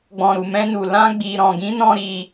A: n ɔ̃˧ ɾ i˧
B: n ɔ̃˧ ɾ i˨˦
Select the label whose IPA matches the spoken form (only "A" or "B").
A